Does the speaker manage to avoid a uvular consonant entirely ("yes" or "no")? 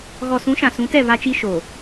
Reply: yes